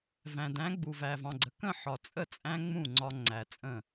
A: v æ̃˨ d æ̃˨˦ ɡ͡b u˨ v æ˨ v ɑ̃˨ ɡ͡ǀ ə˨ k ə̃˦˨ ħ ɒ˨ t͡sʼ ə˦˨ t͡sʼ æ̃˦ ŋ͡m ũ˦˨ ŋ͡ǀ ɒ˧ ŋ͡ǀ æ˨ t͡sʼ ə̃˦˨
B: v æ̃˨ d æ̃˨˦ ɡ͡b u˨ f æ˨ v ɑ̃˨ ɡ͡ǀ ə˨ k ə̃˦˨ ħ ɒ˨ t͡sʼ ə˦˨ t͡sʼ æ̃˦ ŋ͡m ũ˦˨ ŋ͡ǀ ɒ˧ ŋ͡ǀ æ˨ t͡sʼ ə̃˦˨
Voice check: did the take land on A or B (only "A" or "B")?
A